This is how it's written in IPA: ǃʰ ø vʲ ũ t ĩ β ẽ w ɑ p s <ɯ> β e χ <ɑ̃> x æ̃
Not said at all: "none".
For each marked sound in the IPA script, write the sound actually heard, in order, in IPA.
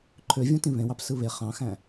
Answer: ɯ, ɑ̃

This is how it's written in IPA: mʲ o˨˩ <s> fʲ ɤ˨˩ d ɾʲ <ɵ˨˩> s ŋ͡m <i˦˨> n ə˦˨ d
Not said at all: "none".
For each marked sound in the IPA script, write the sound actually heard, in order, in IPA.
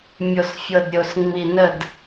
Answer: s, o˨˩, i˨˩

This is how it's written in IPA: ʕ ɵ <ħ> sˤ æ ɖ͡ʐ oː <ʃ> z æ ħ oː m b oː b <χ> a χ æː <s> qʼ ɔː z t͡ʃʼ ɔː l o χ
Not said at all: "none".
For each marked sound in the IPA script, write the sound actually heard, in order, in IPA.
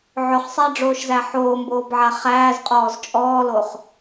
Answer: χ, ʃ, ʕ, z

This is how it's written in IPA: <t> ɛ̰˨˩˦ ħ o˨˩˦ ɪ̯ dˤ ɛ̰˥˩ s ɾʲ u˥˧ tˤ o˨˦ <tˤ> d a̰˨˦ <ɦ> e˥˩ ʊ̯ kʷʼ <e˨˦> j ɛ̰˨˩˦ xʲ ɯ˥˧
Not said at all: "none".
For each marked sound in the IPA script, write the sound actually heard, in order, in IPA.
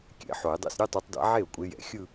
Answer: kʲ, tˤ, ʕ, e˨˦

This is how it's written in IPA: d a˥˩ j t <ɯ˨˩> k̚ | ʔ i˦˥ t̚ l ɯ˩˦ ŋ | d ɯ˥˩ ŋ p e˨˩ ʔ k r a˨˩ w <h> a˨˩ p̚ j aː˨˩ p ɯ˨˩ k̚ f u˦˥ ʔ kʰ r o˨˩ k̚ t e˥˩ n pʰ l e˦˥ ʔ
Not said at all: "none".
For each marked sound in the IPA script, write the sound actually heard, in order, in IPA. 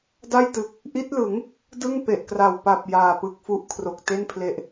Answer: ɯ˨˩, p

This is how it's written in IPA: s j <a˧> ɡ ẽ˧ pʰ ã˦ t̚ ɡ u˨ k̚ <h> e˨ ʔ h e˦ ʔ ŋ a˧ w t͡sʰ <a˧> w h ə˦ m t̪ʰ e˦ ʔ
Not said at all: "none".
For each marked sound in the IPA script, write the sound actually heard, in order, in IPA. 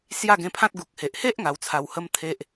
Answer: a˥˧, h, a˧

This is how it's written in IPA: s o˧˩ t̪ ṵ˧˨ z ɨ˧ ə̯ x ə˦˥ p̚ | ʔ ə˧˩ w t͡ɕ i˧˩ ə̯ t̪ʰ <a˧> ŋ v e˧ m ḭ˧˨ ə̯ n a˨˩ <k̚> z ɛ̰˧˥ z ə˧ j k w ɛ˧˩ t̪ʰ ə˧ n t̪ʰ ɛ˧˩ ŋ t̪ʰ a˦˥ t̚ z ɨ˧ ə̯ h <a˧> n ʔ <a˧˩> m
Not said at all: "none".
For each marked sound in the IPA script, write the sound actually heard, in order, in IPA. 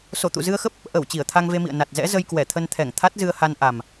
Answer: a˧, t̚, a˧, a˨˩

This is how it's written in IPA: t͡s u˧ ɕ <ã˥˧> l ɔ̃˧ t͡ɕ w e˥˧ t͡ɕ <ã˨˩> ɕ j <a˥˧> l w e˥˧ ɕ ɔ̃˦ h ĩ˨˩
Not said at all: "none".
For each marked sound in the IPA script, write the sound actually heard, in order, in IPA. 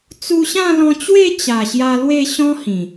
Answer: ã˥˧, a˨˩, a˧

